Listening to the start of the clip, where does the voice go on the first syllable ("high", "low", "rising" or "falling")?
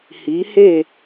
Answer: rising